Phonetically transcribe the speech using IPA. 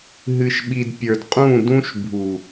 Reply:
ɦ ɨ˨ ʃ ɓ i˨ d pʲ ə˞˨ d qʼ ũ˦˨ d ũ˦ ʃ bʱ u˨

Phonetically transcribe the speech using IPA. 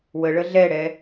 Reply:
w ə ɭ ə ɮ ɛ ɽ ɛ

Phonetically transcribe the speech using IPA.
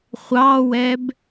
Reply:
χʷ ɑ w ɛ b

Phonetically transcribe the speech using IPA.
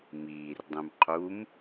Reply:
m iː r dˤ ũ m qʰ u m

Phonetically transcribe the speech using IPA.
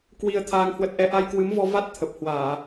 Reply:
k w i˧ ə̯ t̪ʰ aː˧ ŋ h w ə˦˥ t̚ ʔ ɛ˧ ʔ a˧ j k w ɨ˨˦ m v ɔ˧ v a˦˥ t̚ t̪ʰ ə˨˩ p̚ h w aː˧˩˨

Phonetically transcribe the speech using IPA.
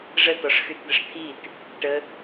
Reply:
ʐ ə t ɔ ʂ x y t d̪ ə ʂ t̪ʰ i t | ʈ ə

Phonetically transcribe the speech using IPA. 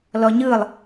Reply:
l ɔ ɲ ɯ lˠ

